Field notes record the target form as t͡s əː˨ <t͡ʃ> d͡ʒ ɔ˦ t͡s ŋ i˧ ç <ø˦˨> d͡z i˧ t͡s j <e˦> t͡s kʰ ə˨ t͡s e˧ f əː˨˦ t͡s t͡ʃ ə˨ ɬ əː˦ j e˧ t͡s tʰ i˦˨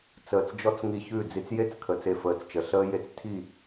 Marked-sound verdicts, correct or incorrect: incorrect: t͡s, incorrect: ʉ˦˨, correct

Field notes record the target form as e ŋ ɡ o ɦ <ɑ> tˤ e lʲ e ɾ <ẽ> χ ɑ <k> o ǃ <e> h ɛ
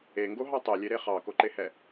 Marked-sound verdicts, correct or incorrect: correct, incorrect: e, correct, correct

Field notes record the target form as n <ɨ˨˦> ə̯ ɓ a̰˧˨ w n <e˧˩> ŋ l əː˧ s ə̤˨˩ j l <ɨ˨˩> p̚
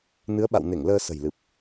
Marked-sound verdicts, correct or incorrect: correct, correct, correct

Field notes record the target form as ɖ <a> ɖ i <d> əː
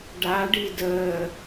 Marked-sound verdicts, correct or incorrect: correct, correct

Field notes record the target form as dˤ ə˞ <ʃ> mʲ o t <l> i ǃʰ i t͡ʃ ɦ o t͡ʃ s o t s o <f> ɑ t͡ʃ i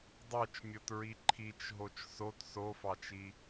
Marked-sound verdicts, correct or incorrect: incorrect: t͡ʃ, incorrect: ɹ, correct

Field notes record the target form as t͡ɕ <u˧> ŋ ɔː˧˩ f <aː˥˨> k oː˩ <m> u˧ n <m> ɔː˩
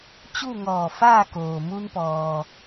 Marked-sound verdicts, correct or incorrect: incorrect: u˥˨, correct, correct, incorrect: p

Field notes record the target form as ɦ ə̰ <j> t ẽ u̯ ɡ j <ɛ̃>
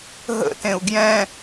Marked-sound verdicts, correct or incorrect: incorrect: none, correct

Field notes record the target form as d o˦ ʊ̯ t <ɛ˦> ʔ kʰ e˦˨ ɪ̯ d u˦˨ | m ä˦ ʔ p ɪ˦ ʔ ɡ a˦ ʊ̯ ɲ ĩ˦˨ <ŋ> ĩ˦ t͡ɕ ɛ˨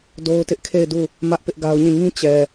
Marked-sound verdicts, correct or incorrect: incorrect: ɪ˦, correct

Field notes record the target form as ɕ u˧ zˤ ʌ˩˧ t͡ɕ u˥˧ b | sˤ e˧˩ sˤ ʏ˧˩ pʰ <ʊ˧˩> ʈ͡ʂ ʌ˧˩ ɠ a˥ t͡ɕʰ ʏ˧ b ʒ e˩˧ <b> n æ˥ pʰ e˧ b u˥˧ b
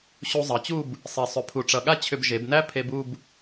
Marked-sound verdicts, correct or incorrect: incorrect: u˧˩, correct

